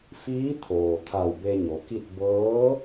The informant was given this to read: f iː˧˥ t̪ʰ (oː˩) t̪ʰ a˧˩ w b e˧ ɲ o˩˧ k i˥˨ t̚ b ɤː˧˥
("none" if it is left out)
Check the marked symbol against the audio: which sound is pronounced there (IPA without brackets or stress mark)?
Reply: oː˩